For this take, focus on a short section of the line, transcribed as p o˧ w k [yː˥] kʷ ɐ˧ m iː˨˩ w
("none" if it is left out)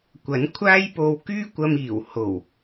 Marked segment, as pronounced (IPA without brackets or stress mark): yː˥